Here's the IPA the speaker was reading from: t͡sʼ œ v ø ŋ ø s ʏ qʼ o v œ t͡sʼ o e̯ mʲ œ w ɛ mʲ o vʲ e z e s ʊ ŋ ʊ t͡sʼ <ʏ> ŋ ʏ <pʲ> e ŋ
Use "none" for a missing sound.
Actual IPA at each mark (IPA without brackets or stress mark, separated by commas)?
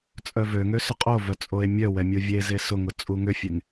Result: u, fʲ